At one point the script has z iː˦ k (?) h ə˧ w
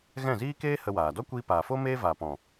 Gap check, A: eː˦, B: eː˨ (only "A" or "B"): A